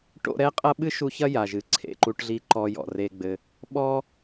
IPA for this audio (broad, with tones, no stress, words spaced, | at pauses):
ʈo̰˦ɾɛ˥qʼɐ˥ɓɨ˥ ʃu˦ çɐ˥ja˩ʒɨ˩ ǀʰḛ˩ǃu˨ʈɮi˨ ǃɔ˨ jɔ̰˩re˨ɡ͡bɘ˨ | ɓɔ˥